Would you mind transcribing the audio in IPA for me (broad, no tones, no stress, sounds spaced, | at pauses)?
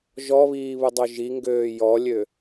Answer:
ʒ ɔ β iː β u dˤ o ʒ i ŋ ɡ øː j ɔ lʲ ø